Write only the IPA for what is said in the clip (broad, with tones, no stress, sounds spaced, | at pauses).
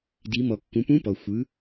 d i˩˧ m ɔ˩ kː ũ˩˧ p ũ˧˥ p ɔ˩ xʷ ɯ˩˧